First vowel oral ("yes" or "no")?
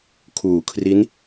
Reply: yes